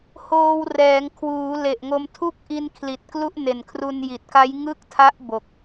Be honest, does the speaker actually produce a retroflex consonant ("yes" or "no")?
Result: no